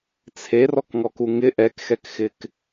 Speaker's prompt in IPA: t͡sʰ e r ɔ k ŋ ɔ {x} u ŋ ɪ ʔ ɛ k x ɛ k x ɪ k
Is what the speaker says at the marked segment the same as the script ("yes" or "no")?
no